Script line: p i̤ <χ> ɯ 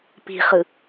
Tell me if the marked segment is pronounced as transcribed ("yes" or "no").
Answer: yes